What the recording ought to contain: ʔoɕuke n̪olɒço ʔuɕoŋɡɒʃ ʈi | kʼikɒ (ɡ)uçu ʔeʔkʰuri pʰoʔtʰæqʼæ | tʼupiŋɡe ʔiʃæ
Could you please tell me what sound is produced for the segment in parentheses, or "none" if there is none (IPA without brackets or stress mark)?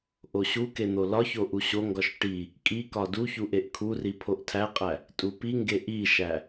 d